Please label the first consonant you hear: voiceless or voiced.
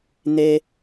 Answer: voiced